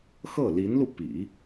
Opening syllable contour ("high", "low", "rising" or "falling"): falling